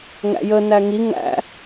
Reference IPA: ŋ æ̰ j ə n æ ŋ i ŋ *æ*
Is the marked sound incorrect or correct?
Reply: incorrect